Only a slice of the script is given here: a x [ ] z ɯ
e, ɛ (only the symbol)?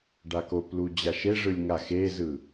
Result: e